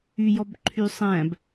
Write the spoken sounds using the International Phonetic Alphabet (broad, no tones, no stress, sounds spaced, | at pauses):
y j ɔ b ǃʰ y sˤ æ̃ b